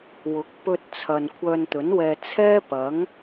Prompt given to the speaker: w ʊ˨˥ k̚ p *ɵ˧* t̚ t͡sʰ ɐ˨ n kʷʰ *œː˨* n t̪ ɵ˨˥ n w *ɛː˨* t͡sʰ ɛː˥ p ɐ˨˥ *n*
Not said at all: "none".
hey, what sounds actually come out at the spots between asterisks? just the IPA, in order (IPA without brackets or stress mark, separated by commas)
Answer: ɵ˧, œː˧, ɛː˧, ŋ